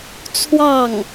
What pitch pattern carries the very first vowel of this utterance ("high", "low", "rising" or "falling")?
falling